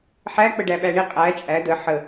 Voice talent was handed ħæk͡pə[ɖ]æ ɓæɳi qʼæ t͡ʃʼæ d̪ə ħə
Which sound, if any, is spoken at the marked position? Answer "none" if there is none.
ɖ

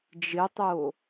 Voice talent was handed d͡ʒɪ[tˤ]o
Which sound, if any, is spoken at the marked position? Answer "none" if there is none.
tˤ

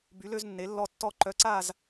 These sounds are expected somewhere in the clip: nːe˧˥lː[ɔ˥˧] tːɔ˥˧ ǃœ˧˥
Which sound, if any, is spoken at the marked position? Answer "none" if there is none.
ɔ˥˧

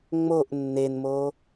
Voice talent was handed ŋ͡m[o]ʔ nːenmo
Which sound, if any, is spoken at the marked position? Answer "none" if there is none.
o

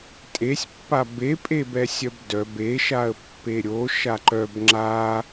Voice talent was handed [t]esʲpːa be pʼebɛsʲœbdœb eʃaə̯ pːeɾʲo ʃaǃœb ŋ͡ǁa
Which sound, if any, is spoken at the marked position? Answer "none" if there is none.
tʼ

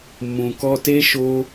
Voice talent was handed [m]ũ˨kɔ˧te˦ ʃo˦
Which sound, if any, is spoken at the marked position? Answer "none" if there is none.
m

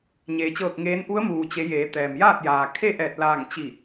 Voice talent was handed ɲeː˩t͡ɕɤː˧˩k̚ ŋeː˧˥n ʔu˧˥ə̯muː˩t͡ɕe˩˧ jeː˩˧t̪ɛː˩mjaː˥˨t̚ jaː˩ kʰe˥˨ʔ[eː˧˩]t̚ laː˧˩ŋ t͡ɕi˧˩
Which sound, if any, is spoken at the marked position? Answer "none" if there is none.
ɛː˧˩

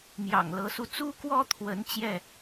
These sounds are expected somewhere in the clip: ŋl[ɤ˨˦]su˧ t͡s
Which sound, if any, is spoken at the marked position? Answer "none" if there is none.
ɤ˨˦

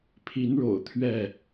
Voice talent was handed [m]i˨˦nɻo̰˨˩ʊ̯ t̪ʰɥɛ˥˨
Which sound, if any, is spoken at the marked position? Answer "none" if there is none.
pʰ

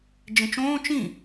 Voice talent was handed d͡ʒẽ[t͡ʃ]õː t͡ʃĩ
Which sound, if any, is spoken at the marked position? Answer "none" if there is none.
t͡ʃ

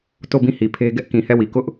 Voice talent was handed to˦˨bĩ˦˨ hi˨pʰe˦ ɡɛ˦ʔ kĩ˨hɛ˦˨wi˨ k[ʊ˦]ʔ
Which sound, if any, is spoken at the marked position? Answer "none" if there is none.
ʊ˦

